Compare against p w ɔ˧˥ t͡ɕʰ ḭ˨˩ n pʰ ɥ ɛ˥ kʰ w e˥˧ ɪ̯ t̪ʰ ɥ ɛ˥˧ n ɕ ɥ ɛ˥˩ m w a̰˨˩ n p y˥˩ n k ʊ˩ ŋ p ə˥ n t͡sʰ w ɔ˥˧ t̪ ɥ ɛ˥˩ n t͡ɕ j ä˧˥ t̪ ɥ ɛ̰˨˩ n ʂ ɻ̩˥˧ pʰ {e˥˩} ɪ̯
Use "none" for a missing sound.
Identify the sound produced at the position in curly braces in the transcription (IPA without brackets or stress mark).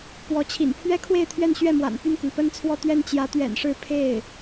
e˥˩